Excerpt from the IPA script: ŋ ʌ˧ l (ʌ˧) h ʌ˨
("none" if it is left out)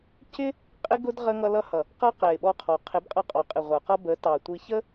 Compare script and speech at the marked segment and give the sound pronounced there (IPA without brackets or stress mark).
ʌ˧